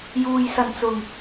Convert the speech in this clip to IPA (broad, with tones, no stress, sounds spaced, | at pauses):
j uː˨ j s ɐ˨˩ n t͡s ʊ˨˩ ŋ